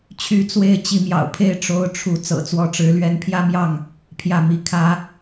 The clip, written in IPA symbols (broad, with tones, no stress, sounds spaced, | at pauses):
t͡ɕʰ y˧˥ t͡s w e˥˩ ɪ̯ t͡ɕ i˧˥ m j ɑ̰˨˩ ʊ̯ pʰ e˥˩ ɪ̯ ʈ͡ʂ o˥ ʊ̯ ʈ͡ʂʰ u˥ t͡s ɤ̰˨˩ t͡s w ɔ˧˥ ʈ͡ʂ ɻ̩˧˥ l ɥ ɛ˧˥ n pʰ j ä˥ m j ɑ˥˩ ŋ | pʰ j ä˥˩ m i˥ kʰ ä˥